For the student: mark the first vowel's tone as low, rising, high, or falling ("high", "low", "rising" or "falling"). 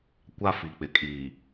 high